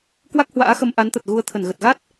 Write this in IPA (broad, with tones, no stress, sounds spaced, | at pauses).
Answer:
k w a˦˥ k̚ h w a̰ː˧˥ x ə˧ m ʔ a˨˦ n t̪ ə˨˩ t̚ ɣ u˨˦ ə̯ t̪ʰ ə˧˩ n ɣ ə˨˩ t̚ ɣ a˦˥ t̚